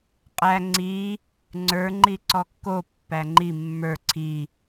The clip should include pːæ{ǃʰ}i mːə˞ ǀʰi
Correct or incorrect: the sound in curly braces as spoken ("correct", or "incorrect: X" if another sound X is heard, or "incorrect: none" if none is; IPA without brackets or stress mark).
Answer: incorrect: ŋ͡ǃ